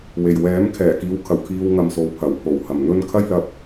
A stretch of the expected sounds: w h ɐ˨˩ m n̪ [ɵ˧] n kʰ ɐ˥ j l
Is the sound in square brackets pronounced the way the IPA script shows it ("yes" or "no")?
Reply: yes